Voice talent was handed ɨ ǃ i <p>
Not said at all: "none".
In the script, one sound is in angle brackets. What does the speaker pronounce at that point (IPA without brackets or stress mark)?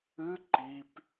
p